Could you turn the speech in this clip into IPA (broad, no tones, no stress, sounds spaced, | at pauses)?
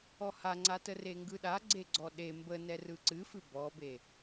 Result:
ɔ h a ŋ͡ǀ a t ə r e ŋ ɡ ɯ ɗ a ɡ͡ǀ e ɡ͡ǀ ɔ ɗ e m b ə n ɛ r ɯ ǀ ɨ f ɨ b ɔ b e